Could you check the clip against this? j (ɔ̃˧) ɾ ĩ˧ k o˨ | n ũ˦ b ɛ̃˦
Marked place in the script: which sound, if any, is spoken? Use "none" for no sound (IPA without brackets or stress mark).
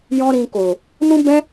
ɔ̃˦